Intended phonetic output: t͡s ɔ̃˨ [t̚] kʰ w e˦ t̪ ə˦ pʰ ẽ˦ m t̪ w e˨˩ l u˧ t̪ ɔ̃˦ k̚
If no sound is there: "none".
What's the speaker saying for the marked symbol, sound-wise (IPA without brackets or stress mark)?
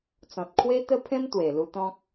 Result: t̚